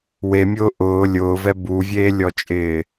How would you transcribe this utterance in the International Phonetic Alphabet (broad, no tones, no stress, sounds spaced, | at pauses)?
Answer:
w e mʲ ʊː ʔ ʊː lʲ ʊː v ɛ b u vʲ eː lʲ ɔ t͡ʃʼ ɪː